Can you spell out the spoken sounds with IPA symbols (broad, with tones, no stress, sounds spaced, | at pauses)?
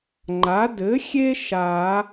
ŋ͡ǃ a˩˥ d ɘ˩˥ xʲ e˦ ʃ a˨˩˦